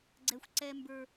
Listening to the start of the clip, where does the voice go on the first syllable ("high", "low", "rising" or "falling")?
high